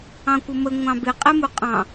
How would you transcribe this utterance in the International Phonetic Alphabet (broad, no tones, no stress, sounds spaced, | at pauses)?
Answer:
ɑ̃ kʷ ə m ə ŋʷ ɑ̃ b ɪ qʼ ɛ m u qʼ ɑ̃